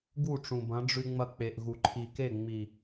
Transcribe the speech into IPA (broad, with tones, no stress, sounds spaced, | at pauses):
ɡ u˦˨ ʈ͡ʂ ũ˨ b ɐ̃˨˦ ɖ͡ʐ ʉ˧ ŋ͡m ɐ˧ k͡p e˨ ʔ ɣ u˨ ǃʰ i˨ k e˦˨ ŋ͡m i˨